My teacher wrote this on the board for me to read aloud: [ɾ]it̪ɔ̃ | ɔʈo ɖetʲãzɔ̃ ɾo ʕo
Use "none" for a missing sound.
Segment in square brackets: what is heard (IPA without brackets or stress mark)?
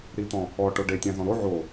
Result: ɾ